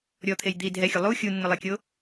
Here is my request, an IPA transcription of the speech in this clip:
ɾʲ ɔ t̪ʰ e j d̪ i dʱ ɛ xʲ o lˠ u xʲ u nː ʊ lˠ e kʲ o

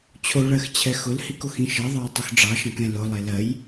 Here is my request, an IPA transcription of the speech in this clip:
t͡ɕʰ o ɭ ɜ x t͡ɕʰ ɛ x ʊ l h i k o x ĩ ʃ ɜ ðˤ ɑ j tˤ ʉ x ɖ͡ʐ ɑ ʃ ɑ̃ k ɛ̃ l ʊ lˠ e l ɜ j

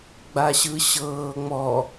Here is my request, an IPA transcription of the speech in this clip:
ɡ͡b a ɕ ɯ ɕ ɤː ŋ͡m ɔ

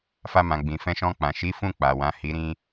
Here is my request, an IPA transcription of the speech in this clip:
f a˧ m ã˨ ɡ͡b ĩ˨ f ɛ̃˧ ʃ ɔ̃˧ k͡p ã˨ ʃ i˨˦ f ũ˦˨ k͡p a˨ w ã˨ h i˨˦ ɾ ĩ˦

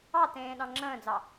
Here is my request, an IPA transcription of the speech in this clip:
ɑ t ẽː ɗ ɑ̃ ŋ͡ǁ ə̃ː d͡z ɑ

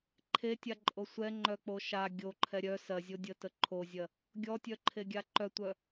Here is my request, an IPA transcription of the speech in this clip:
ǃʰ e tʲ a ǃʼ o sʷ ɛ ŋ͡ǃ œ k͡p o ʃ a ɡʲ o ǃʰ ɛ ɾʲ œ s ɜ zʲ o dʲ ə t ə ǃʰ o zʲ ɜ | ɡʲ ɔ tʲ œ ǃʰ e ɡʲ a ǃ œ tʷ œ

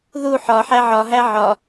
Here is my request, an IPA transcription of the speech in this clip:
ð u ħ ɒ ħ æ ʕ ɒ ɦ æ ʕ ɒ

